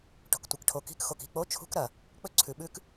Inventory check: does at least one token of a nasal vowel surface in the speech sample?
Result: no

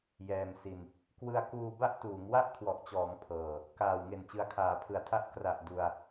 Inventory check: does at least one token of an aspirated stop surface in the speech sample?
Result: yes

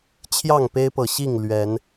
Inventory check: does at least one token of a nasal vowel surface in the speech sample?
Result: no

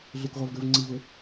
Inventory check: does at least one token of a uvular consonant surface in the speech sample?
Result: yes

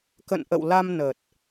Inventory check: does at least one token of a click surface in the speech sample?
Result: no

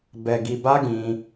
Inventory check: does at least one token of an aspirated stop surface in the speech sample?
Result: no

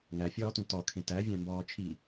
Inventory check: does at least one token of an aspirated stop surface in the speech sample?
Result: yes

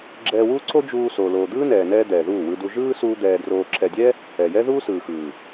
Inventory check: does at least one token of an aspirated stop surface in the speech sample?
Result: no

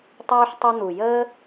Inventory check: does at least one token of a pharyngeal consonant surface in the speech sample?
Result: yes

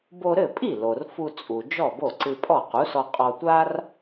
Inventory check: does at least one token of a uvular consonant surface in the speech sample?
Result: yes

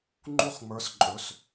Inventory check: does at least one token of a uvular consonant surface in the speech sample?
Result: yes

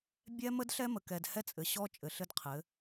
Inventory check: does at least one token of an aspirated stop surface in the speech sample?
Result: yes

